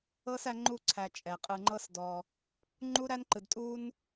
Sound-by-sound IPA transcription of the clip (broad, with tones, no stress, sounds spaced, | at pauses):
ɤ˥ s æ˦ ŋ͡ǃ u˦ ǀʰ æ˨ t͡ʃʼ ɛ˩ qʼ ɯ˨ ŋ͡ǃ ɤ˥ s d ɔ˨ | ŋ͡ǃ u˥ ɾ æ˥ n ǃ ɯ˨ d tʼ u˥ n